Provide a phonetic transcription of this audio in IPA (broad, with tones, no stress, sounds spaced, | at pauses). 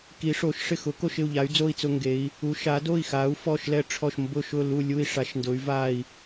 k i˩˧ ʂ o˩˧ ʃ ʂ ɪ˦˨ x ʊ˩˧ k o˦˨ ʃ ɪ˦˨ u̯ ʎ a˩˧ y̯ d͡z o˦˨ i̯ t͡s ʊ˦˨ ŋ ɡ e˩˧ i̯ | u˩˧ ʃ a˩˧ d o˦˨ i̯ x a˩˧ u̯ f ɔ˦˨ ʃ l ɛ˦˨ ʈ͡ʂʰ ɔ˦˨ ʃ m b ʊ˦˨ ʃ ʊ˦˨ l u˦˨ lʲ u˦˨ i̯ ʂ a˩˧ ʃ n d ʊ˩˧ y̯ v a˦˨ i̯